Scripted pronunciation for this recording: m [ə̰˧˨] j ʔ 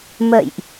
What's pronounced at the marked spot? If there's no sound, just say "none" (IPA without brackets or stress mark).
ə̰˧˨